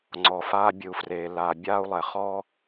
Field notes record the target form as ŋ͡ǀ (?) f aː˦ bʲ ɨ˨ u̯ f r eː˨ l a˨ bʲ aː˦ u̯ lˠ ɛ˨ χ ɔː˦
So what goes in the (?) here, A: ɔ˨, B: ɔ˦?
A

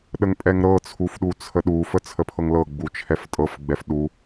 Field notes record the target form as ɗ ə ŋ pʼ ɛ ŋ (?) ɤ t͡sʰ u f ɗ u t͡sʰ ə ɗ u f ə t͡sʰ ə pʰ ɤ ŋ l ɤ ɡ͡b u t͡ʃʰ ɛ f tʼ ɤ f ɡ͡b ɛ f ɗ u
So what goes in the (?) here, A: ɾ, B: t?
A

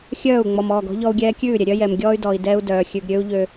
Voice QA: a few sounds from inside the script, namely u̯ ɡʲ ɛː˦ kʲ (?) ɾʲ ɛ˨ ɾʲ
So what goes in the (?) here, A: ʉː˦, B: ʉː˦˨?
B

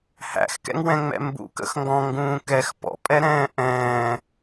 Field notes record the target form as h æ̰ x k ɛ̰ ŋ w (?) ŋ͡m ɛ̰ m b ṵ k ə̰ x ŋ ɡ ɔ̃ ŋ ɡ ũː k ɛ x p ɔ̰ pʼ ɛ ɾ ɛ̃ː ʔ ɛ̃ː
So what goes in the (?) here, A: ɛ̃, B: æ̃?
A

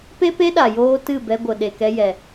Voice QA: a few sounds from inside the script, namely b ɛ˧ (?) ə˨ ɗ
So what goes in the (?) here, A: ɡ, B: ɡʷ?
B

